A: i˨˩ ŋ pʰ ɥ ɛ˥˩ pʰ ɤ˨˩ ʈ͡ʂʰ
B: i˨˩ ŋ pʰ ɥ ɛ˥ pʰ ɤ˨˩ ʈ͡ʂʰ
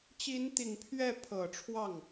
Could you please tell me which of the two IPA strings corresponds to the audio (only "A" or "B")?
A